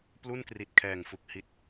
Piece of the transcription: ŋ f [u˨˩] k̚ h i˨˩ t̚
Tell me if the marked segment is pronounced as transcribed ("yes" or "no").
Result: yes